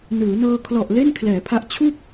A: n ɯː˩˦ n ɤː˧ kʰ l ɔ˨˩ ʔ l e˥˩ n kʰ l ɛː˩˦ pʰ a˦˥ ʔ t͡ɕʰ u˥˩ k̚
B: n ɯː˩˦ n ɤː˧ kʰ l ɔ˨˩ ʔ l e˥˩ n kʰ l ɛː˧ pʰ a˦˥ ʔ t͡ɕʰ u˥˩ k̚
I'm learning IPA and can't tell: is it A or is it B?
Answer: A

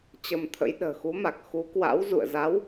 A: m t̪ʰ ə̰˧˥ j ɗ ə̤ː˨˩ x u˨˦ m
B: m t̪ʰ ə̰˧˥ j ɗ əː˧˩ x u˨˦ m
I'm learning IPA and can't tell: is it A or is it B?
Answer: A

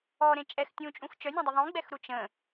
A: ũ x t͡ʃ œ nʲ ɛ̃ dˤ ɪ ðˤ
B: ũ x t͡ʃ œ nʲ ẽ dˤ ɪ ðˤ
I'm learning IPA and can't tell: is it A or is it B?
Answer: A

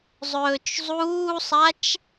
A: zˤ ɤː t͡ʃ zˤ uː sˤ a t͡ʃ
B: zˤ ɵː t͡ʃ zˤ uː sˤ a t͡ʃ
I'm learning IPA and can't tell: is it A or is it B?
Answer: B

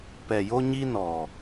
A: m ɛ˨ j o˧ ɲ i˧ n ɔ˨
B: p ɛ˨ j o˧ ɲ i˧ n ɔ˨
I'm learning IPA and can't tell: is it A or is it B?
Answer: B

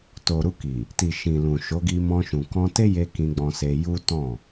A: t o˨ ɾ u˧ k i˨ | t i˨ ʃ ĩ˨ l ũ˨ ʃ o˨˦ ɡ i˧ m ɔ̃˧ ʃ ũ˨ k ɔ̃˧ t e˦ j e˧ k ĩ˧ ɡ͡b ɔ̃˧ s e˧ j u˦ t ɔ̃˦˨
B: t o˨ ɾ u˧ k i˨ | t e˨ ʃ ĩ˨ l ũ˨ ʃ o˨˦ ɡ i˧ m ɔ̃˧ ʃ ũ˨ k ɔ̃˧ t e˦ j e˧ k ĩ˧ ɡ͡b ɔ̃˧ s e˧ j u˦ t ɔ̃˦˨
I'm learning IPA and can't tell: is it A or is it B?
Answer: A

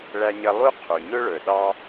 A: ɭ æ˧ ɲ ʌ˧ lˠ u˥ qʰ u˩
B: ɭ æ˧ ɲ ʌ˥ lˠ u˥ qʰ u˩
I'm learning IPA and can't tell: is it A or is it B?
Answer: A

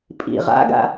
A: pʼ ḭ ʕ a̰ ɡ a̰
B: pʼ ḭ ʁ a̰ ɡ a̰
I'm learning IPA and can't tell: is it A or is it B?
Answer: B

